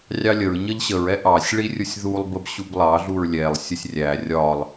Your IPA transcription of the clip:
rʲɑlʲəɹ ɲʌʎɕəɹ ɛʔɑsʲ ɭirʲusʲðulˠ bəbɕublˠɑ ɮuɹlʲɛlˠ sʲəsʲrʲæ rʲɒlˠ

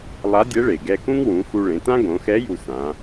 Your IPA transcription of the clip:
lˠa˧˥dʲɛ˧˥ɭe˩ ɡɛ˧kũ˥ŋwũ˩˧ xu˧ɭẽ˩˧tã˥ ɡõ˩˧xɛ˧˥ ju˧ sã˩˧

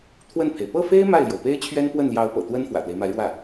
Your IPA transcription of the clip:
t̪ʰwə˥˩npʰe˩ɪ̯ pɤ˥˩fe˥ɪ̯ ma˥˩ɪ̯ljo˩ʊ̯pe˥ɪ̯t͡ɕʰɥɛ˥n pwə˥˩nljɑ˧˥ʊ̯pɤ̰˨˩ t̪wə˥n fwä̰˨˩t̪we˦ɪ̯ma˧˥ɪ̯ɻwä˥˩

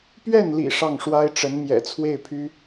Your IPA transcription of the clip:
pɥɛ˥˩nlḭ˨˩ ʂɑ˥˩ŋʂwa˥ɪ̯ʈ͡ʂə˧˥n mjɛ̰˨˩t͡sʰwe˥˩ɪ̯pʰy˥

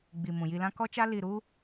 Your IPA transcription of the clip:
ɡ͡bi˨ mũ˨ji˧lã˦ kɔ˦t͡ʃa˦ li˧ɾu˦

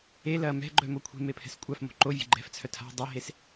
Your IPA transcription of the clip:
e lɐ mɛ̤ɡ͡ǃœmo kʷʰe̤mepʰɛ̤s kʷʼafmo̤ ǃovʲe̤ ɡ͡ǃɛ̤ft͡sʰœ tʰa̤ dˤɛɦes

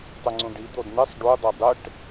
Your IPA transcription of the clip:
tˤʊŋ͡ǀũɖi d̪odn̪esˤ ɖu dˤodˤɪʈ

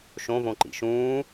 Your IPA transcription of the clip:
ʃõvõǃḭ ʃũː

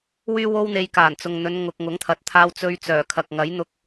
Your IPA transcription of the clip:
wyː˥wo˥wn̪e˧j kaː˨˩nt͡sʊ˨ŋ n̪ɵ˨˧nŋʊ˨k̚ ŋʊ˨˥ŋt̪ʰɐ˨t̚ t̪ʰaː˧wt͡sɵ˧ɥt͡sœː˨˩kʰɐ˨k̚ ŋɐ˨˥jn̪ʊ˧k̚

